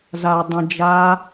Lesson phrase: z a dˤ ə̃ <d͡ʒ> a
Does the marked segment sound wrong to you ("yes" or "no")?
no